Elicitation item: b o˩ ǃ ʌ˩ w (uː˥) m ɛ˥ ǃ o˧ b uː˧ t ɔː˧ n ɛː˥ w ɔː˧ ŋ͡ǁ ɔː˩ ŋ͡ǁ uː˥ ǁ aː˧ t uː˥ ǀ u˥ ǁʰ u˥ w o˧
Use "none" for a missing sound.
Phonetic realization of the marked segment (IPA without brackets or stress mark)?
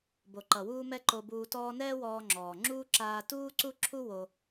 uː˧